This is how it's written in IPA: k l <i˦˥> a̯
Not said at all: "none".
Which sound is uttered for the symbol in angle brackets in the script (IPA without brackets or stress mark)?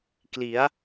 i˩˦